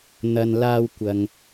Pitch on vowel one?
low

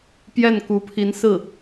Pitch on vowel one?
falling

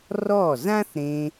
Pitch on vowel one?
falling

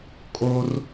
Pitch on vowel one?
high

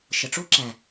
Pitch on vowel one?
low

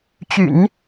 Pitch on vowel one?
low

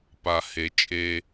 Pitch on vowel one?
low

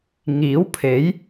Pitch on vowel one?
rising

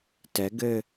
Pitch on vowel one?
rising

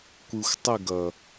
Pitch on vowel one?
low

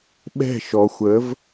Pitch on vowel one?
falling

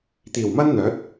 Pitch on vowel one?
low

